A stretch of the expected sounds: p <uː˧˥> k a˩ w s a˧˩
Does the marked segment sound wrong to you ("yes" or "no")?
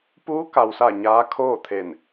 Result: no